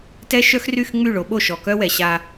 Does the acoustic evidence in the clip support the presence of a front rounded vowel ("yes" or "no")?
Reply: yes